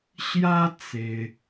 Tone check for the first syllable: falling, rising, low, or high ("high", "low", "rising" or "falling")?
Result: high